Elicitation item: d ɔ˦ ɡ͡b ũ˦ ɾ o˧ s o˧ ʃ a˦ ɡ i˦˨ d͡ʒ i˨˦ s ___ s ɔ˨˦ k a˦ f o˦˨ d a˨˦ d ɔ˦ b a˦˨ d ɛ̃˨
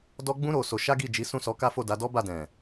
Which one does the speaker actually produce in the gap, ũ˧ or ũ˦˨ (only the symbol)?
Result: ũ˦˨